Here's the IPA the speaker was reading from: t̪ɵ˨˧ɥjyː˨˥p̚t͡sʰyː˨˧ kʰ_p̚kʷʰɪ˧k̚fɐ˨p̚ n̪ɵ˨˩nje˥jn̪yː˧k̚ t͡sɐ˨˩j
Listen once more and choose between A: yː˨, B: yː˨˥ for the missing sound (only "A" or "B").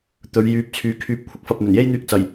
B